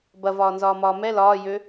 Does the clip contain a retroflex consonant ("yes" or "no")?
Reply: no